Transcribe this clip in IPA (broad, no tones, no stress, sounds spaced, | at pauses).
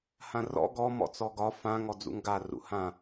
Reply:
h ã r ɔ̰ ɡ ɔ m ɔ̰ t͡s ɔ ɡ ɒ f ã ŋ ɔ d͡z ṵ ŋ ɡ a r ṵ h ã